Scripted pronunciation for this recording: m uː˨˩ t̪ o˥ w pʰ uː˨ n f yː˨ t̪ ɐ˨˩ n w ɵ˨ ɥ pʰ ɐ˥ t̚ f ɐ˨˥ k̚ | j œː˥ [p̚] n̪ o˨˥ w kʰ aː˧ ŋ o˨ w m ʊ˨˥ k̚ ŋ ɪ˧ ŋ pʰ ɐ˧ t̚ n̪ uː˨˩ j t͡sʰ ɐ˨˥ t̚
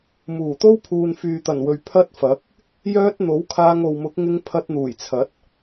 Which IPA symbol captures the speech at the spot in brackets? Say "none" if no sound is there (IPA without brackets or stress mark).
t̚